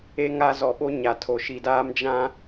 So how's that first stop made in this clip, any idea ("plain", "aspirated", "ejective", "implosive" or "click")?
implosive